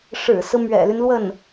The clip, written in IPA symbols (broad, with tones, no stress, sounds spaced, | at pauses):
ʂ ɻ̩˨˩ s ɹ̩˦ m ɥ ɛ̰˨˩ l y˦ n l w ə˥˩ n